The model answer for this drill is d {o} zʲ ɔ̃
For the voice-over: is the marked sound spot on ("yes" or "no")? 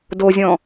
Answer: yes